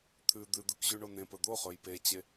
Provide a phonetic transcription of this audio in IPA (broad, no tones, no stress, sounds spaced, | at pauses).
t̪ʰ ʉ d̪ ʉ d̪ ʉ k ʑ ʉ ɳ o n ẽ p ɵ d̪ o χ ɵ j p e t͡ɕ e